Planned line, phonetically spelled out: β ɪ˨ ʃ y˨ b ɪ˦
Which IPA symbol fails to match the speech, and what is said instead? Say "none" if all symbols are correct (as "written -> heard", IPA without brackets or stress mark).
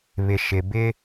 y˨ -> ɪ˨